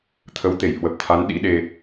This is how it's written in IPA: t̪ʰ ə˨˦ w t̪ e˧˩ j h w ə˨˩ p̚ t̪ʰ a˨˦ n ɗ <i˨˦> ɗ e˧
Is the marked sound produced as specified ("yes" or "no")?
no